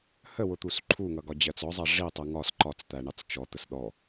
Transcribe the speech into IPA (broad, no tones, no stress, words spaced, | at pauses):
həwʊt̪us ǃʰuŋʌɡɒ d͡ʑɜt͡sɔzˤɑ ʐi tˤuŋɒs ǃɒt͡st̪æɳɑt͡s t͡ʃɔ t̪əsɗɔ